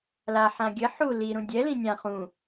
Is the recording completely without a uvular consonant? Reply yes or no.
no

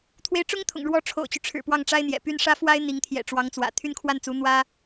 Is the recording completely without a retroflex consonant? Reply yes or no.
no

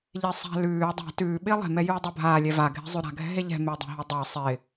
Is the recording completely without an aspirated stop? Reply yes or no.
yes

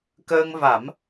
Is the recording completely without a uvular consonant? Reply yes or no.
yes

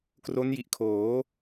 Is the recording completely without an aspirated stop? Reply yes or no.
no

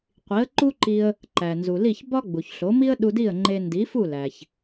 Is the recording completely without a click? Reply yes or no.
no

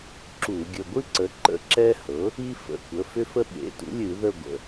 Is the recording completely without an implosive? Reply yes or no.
no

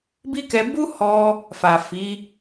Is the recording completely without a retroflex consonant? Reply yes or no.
yes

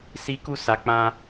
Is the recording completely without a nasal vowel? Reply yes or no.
no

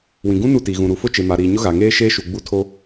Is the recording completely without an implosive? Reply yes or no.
yes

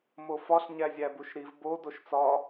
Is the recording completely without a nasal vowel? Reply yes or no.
yes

